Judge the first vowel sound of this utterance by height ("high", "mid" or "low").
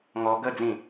mid